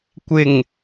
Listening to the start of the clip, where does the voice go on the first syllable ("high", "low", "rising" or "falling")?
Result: low